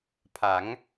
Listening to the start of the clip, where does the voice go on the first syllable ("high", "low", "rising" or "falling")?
rising